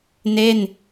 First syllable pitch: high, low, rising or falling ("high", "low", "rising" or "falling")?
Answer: falling